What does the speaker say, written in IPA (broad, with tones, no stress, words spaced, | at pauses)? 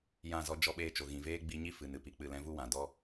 jã˦˨zɔ˦d͡ʒɔ˦ ɓeː˧t͡ʃo˨ɣĩ˨ veː˦ɡ͡bi˧ɲi˦ fɨ˨n ɨ˧pi˨k͡pɨ˦˨lɛ̃˦ vu˦wã˨dɔ˦